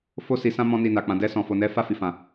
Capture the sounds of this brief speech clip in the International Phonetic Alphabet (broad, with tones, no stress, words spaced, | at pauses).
fo˦si˧sã˦ mɔ̃˧ ni˧na˨ k͡pã˨dɛ˧ sɔ̃˨fo˨nɛ˨˦ fa˦˨fi˨fã˨